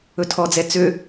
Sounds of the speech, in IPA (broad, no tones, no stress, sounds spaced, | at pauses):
ɵ tʰ ɔ d͡z ɛ t͡s ø